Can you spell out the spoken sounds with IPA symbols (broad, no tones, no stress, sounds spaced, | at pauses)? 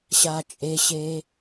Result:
ɕ a t͡ʃʼ e ɕ e